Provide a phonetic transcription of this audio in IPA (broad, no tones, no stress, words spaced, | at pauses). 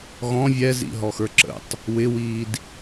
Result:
ɣɔ̃ vʲɛzḭɦɔxə˞ ǁə̰tˤ | wɪwiːd